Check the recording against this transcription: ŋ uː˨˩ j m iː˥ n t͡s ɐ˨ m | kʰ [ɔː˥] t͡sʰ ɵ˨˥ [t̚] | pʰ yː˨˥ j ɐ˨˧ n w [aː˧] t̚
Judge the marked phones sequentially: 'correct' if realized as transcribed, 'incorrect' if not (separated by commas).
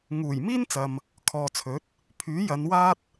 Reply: incorrect, correct, incorrect